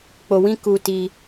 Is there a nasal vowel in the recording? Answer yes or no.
yes